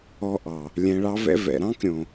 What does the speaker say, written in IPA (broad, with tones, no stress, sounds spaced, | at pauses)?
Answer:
ɔ˧ ʔ ɑ˨ | lʲ ɛ̃˨ ɭ ɑ˧ v ɛ̰˧ v ɛ̰˨ ɾ ɑ̃˦ k ɾʲ õ˨